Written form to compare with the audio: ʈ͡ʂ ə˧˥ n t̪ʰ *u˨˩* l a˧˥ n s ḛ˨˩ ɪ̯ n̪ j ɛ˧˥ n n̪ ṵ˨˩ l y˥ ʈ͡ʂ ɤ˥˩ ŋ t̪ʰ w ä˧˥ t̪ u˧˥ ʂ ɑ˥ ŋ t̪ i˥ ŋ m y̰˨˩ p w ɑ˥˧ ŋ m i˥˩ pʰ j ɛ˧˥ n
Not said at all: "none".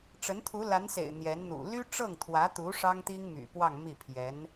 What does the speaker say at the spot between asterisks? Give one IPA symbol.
u˧˥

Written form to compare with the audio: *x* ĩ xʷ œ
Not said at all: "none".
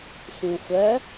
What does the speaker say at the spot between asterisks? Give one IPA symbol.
x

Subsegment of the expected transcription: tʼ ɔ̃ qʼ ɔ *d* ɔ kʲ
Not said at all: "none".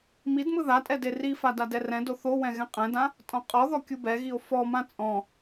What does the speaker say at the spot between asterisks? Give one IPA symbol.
ð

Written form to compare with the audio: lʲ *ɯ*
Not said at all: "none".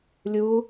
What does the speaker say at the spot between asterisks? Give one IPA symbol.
u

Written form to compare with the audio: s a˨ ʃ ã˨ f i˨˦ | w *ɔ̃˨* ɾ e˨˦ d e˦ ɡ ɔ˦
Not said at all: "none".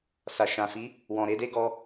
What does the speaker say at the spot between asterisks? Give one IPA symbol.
ɔ̃˨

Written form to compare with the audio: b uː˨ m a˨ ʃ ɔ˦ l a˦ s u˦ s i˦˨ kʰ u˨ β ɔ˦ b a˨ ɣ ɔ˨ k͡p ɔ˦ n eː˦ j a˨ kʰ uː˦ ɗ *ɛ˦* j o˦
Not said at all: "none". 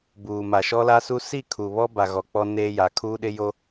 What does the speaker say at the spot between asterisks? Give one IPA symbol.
ɪ˦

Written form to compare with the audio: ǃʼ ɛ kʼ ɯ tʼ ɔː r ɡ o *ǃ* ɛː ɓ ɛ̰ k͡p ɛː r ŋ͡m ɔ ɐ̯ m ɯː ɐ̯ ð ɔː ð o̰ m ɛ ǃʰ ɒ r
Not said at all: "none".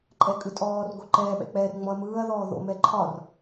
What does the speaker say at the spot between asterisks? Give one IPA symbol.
ǃ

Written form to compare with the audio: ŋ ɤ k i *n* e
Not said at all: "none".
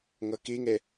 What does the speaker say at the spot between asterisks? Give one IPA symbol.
ŋ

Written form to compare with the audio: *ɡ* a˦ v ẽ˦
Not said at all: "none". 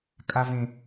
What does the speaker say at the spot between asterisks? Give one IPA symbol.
kʼ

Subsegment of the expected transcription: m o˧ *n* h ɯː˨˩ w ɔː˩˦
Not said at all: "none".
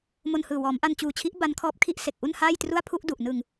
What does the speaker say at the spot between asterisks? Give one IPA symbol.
n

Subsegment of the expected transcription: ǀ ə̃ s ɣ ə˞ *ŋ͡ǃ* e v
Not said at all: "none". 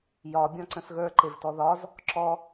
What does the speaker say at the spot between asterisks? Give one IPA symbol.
ǃ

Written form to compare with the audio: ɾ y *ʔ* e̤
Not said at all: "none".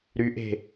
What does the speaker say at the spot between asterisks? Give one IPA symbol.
ʔ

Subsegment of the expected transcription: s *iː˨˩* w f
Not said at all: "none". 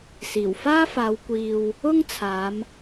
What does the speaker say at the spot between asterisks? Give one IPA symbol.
iː˨˩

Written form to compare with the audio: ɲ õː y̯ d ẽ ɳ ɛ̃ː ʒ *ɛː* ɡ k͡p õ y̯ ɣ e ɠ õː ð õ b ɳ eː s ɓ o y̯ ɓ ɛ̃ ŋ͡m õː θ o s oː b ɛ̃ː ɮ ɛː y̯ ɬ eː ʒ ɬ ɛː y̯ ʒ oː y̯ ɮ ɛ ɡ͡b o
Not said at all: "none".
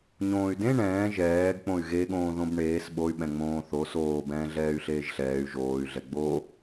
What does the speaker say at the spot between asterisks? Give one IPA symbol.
ɛː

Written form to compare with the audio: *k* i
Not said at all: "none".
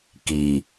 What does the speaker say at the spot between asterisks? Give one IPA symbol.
k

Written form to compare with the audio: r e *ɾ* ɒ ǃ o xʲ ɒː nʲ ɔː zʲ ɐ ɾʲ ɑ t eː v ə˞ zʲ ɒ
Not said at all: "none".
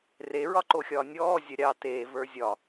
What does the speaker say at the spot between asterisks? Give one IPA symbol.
ɹ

